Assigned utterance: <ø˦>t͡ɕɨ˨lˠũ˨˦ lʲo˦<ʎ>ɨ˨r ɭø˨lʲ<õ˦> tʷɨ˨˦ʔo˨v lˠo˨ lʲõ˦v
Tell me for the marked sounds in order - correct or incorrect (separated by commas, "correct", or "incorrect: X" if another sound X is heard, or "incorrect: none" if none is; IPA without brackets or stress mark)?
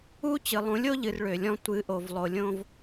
incorrect: u˦, correct, incorrect: ɔ̃˦